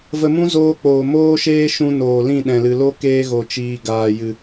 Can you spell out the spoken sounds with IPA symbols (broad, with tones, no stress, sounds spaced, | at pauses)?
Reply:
v ə˧ m ũ˦ z oː˧ k͡p oː˨ m oː˦ ʃ eː˦ ʃ ũ˧ n oː˨ l ĩ˦˨ ɗ ɛ̃˨ l ɨ˨ l o˦ k eː˧ ɣ o˨ t͡ʃ iː˨ ɡ aː˨ j ɨ˨